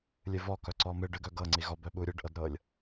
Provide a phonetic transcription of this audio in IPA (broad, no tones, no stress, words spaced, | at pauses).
lʲɨvɔ kœǀɔmɨɖ ɨɡœɡɤŋ͡ǀi ɣɔbœ ɓuɾʲɨɖʔɤdɾɤlʲ